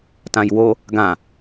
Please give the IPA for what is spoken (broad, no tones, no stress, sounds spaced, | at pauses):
t ã j w o | ɡ ã